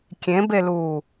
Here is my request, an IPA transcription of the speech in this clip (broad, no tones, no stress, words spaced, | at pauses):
kʲẽbeluː